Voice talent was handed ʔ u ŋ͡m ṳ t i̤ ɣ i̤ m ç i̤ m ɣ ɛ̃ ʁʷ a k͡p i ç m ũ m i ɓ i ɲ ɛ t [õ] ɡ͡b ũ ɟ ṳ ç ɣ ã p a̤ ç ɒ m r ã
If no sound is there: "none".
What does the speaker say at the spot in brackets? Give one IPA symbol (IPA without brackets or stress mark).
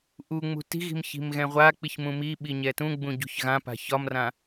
ũ